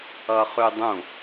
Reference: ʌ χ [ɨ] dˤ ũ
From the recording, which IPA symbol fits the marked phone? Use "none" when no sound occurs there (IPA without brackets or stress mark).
ʉ